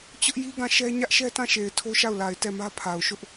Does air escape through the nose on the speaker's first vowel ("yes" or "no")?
no